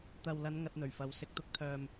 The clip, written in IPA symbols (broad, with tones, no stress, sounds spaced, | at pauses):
t̪ ɐ˨ w l ɐ˨˧ n ŋ ɐ˧ t̚ n̪ ɵ˨˩ ɥ f ɐ˨ w s ɪ˨ k̚ t̪ ʊ˨˥ k̚ t̪ʰ œː˨ m